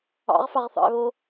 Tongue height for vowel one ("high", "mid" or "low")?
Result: low